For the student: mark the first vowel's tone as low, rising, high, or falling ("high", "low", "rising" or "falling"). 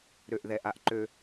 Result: low